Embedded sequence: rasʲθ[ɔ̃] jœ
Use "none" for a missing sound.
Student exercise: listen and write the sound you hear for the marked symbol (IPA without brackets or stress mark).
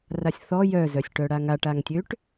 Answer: ɔ